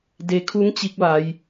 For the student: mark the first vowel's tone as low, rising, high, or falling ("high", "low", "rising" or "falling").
low